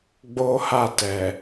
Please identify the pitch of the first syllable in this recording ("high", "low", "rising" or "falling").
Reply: high